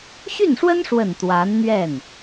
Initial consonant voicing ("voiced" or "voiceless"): voiceless